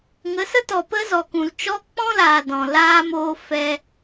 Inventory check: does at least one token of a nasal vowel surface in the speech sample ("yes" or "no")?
yes